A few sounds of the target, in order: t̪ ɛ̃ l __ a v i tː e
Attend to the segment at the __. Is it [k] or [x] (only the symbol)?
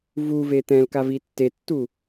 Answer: k